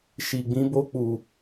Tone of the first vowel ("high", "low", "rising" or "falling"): low